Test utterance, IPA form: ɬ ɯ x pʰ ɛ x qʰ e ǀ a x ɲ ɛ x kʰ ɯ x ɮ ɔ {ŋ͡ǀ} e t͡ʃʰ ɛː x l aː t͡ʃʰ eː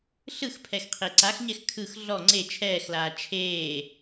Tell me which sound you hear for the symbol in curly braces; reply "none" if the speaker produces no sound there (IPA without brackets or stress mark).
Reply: ŋ͡ǀ